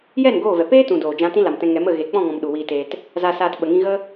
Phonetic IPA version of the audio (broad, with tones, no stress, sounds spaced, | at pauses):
j ɛ˦˨ n ɡ oː˦˨ v ɛ˨ p eː˦ t ũ˨ d oː˨ d͡ʒ ã˧ t ĩ˦ l a˨ m t ɛ̃˧ ŋ ɛ˨˦ m ə˦˨ ɣ e˨ k͡p ɔ̃˦˨ ŋ ɔ̃˨ m ɗ u˨ w iː˧ t eː˧ t | z a˧ s aː˧ t ɓ ə˨ ŋ ĩ˧ ɣ ə˦